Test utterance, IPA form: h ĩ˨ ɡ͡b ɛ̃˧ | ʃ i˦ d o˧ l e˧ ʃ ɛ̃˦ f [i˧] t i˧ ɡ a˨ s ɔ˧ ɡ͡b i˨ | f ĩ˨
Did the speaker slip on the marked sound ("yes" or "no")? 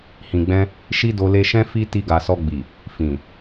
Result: yes